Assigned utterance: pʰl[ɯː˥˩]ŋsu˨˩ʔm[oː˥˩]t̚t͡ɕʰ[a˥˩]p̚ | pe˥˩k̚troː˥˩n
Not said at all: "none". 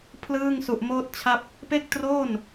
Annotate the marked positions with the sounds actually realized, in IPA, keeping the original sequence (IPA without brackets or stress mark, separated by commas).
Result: ɯː˥˩, oː˥˩, a˥˩